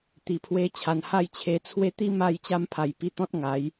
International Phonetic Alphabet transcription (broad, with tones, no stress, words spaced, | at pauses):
t̪i˨˩pʰwe˧t͡ɕʰa˨˩n ha˥˧jt͡ɕʰe˧t͡sʰwe˦ t̪i˦ma˧jt͡ɕa˧mpʰa˨˩j pi˧t̪ɔ̃˦t̚ ŋa˨˦j